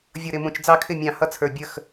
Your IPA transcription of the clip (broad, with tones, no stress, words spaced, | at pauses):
vʲʌ˧˩ ɾɪ˥˨mũ˧˩t͡ʃ d͡zɑ˥˨kʰɪ˥˨ mʲɑ̃˧˩hʌ˦˥t͡sʰə˞˧˩ bʲə˥˨x